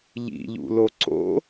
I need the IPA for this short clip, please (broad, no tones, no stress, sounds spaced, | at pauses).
ʎ ḭ ʎ ṵ l o ǀ o̰